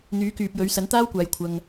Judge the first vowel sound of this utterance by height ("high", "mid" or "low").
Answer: high